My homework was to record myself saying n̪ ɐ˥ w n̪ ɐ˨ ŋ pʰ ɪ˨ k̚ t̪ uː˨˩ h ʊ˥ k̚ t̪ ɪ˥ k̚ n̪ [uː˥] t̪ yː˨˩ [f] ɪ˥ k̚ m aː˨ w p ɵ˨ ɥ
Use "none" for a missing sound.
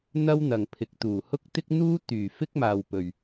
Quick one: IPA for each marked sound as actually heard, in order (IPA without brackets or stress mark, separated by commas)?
uː˥, f